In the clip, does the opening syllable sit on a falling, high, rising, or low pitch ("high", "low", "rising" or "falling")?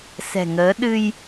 low